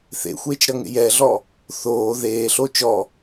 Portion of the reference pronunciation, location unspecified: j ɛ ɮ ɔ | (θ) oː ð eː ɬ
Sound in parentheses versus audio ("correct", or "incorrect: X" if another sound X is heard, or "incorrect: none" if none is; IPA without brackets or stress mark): correct